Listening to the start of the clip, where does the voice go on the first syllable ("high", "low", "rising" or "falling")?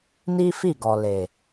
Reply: high